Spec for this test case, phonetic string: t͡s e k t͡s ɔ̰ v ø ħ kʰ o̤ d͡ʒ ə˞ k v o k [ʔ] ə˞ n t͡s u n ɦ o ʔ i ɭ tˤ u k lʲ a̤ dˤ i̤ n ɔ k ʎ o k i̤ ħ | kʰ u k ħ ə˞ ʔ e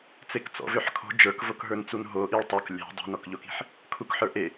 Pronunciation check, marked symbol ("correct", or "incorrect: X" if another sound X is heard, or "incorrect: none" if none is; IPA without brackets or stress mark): incorrect: ɦ